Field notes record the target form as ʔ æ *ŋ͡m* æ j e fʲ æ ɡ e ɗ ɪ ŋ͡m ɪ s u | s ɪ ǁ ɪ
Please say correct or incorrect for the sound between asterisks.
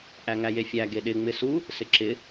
incorrect